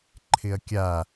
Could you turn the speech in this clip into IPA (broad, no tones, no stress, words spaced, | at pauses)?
ǃʰɪɐ̯kʲa